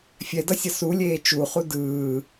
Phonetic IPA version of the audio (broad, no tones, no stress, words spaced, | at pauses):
fʲɛdʌsʲʌ sulʲeː t͡ʃuχu dɯː